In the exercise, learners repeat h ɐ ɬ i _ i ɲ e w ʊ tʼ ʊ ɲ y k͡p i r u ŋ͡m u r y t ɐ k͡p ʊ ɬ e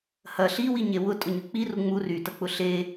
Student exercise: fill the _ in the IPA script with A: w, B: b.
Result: A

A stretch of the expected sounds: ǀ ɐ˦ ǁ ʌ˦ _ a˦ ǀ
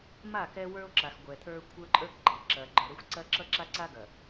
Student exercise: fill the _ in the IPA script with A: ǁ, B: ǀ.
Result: A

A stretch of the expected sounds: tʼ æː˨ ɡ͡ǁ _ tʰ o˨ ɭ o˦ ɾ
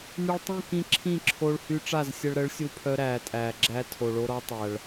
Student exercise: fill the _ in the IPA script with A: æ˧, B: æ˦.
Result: B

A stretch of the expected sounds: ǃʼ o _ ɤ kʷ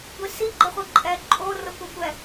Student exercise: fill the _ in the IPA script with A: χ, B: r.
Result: B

